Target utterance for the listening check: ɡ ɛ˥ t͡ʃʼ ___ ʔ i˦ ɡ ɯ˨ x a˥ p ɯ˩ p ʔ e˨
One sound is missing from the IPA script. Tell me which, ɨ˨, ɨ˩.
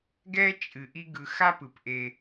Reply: ɨ˩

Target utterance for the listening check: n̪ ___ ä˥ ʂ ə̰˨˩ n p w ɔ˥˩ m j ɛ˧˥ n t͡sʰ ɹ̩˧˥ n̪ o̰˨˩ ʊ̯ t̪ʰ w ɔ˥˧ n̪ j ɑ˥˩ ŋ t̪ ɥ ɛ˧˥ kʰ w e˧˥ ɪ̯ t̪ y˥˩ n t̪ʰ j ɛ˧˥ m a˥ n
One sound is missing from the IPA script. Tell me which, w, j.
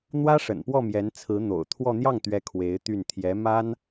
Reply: w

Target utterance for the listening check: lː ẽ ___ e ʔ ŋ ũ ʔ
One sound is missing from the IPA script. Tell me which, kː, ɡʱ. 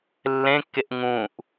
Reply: kː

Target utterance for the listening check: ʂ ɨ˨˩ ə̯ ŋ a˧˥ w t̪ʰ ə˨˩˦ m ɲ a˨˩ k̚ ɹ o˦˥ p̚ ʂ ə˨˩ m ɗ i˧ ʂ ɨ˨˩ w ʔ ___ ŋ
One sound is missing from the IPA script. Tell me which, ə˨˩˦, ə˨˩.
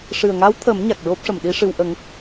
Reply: ə˨˩˦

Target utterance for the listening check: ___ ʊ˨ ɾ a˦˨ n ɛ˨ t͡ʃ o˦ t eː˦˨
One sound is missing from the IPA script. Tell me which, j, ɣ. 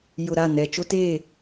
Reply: j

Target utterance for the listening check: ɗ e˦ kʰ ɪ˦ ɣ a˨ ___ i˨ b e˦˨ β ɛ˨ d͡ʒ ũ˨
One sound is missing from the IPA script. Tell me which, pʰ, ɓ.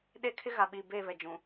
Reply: ɓ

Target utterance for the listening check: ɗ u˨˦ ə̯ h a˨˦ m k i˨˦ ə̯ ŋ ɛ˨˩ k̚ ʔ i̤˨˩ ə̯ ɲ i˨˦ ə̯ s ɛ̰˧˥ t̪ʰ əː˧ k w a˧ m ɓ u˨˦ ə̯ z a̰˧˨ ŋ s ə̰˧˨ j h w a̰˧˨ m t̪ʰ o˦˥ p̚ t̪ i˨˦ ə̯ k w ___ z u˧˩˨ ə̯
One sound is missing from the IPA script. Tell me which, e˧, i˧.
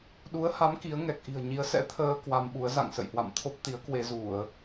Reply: e˧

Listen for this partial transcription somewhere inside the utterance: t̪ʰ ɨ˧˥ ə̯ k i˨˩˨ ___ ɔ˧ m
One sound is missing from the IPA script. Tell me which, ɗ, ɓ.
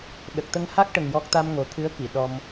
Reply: ɗ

